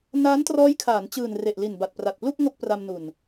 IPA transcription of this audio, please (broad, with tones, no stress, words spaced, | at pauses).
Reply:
naː˦˥ntrɔː˦˥jkʰaː˩˦n t͡ɕɯː˨˩nre˨˩ʔ li˨˩nba˨˩t̚pra˨˩t̚plu˥˩k̚ ŋo˥˩k̚pra˧mnu˨˩n